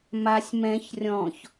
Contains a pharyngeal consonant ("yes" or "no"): no